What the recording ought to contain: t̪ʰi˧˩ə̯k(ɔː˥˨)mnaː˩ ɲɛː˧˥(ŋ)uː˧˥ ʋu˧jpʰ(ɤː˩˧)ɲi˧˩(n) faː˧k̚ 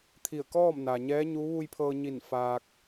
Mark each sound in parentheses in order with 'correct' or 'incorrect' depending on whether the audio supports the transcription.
correct, incorrect: ɲ, incorrect: ɤː˧, correct

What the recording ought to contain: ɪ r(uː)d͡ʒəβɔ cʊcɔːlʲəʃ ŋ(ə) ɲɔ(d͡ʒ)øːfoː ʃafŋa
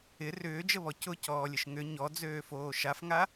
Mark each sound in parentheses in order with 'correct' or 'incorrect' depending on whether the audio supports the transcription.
incorrect: ʏː, incorrect: ʏ, incorrect: d͡z

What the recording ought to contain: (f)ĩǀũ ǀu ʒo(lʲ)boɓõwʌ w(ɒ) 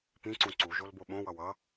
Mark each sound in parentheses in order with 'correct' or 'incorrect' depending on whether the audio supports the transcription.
incorrect: p, incorrect: l, incorrect: ʌ

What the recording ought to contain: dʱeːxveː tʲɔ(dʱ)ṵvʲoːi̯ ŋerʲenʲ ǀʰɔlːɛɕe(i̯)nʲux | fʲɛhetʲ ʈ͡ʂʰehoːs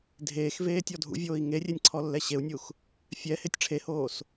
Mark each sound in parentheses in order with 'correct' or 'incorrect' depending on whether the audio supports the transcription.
correct, incorrect: u̯

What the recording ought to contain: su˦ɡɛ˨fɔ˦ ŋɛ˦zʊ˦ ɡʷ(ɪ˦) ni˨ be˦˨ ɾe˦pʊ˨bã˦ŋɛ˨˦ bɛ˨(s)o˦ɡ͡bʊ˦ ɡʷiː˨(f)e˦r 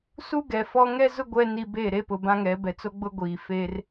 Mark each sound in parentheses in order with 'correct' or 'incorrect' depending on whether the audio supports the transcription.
incorrect: ɛ˦, incorrect: t͡s, correct

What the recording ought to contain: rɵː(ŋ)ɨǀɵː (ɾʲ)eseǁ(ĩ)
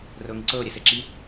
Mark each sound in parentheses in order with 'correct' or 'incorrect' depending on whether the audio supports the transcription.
correct, correct, incorrect: i

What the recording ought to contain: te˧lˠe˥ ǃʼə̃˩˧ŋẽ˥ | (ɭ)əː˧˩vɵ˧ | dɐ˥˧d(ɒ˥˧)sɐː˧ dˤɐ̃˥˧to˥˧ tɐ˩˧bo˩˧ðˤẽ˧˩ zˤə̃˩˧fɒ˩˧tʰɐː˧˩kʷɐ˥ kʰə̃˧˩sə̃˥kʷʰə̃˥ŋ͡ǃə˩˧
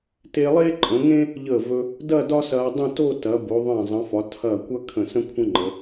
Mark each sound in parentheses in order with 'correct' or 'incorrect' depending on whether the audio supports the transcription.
incorrect: ʎ, incorrect: ɒ˥

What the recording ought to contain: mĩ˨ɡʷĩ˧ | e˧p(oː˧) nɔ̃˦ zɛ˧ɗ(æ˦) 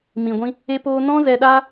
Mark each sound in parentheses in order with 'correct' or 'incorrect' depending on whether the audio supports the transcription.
correct, incorrect: a˦

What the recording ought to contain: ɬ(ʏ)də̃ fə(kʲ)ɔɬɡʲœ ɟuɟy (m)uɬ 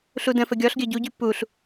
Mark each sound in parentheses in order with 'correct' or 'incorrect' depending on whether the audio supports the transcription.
incorrect: u, incorrect: ɡʲ, incorrect: p

